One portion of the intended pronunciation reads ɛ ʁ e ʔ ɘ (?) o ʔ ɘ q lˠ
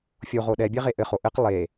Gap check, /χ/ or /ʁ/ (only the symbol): χ